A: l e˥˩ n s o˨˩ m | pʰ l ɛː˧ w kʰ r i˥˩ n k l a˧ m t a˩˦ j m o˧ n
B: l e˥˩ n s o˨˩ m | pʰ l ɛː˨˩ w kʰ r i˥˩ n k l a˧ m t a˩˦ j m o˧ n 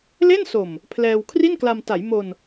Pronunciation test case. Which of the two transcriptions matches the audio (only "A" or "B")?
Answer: A